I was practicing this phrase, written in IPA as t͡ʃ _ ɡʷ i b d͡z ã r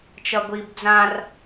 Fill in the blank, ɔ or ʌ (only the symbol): ʌ